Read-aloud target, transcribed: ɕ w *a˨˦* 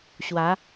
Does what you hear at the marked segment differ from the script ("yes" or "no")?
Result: no